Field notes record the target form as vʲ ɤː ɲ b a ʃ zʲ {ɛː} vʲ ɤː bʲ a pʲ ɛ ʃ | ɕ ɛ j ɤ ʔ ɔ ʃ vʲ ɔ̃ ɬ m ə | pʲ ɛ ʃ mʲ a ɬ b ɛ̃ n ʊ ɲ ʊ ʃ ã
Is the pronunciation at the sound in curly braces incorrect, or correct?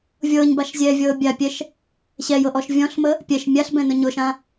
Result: correct